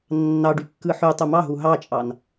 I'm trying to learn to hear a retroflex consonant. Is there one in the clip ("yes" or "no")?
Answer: yes